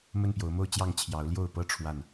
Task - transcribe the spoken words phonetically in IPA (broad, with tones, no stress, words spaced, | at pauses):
mə˥˨npjo˨˦ʊ̯mo˥˨ʊ̯t͡ɕjɑ˥˨ŋ t͡ɕʰjɑ˨˦ʊ̯ljo˥˨ʊ̯pɤ˦ ʈ͡ʂʰwa˥˨n